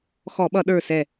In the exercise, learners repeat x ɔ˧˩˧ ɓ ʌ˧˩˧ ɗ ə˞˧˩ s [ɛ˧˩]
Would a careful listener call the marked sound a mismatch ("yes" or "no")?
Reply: no